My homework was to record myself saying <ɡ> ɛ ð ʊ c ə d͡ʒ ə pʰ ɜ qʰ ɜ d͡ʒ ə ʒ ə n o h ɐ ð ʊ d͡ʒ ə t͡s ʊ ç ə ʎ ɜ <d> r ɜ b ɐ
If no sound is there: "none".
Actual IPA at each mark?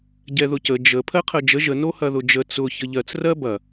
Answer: ɟ, t͡s

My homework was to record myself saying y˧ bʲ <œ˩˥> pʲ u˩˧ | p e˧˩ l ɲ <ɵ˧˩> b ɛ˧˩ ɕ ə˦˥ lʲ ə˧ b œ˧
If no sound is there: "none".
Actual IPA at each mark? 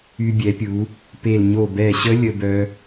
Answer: ɛ˩˥, o˧˩

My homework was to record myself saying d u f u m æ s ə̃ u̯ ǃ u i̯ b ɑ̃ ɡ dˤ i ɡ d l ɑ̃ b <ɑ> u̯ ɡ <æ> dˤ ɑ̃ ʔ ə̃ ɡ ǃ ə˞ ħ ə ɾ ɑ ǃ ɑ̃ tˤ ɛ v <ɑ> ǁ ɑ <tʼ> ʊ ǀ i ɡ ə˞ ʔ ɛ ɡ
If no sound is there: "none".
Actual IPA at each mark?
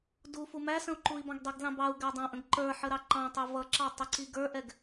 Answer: ɑ, æ, ʌ, tˤ

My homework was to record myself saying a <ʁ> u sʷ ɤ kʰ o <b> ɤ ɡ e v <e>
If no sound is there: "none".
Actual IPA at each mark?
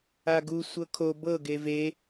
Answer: ɡ, b, e

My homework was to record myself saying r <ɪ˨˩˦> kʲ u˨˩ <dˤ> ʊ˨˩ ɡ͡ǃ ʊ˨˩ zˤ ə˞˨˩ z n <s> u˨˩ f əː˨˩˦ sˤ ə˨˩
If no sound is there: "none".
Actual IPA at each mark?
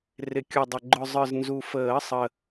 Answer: ɪ˨˩˦, dˤ, z

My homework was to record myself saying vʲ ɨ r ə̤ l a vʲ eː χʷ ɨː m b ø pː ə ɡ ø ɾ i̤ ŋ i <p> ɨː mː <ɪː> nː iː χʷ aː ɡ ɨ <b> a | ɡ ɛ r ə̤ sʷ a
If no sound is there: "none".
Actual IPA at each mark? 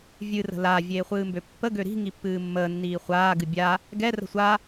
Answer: pː, əː, bʲ

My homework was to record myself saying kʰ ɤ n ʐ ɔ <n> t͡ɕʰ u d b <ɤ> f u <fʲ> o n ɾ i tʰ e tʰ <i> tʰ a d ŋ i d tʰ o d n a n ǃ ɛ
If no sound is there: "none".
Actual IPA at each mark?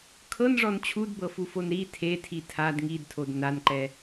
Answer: n, ɤ, f, i

